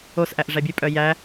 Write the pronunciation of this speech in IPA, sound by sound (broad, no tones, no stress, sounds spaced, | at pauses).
o s ʔ æ ʔ ʐ æ bʲ ʉ pʼ œ j æ